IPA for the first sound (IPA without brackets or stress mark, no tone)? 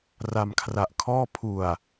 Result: r